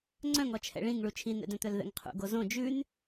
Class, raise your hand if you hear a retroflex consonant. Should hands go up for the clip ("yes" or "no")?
yes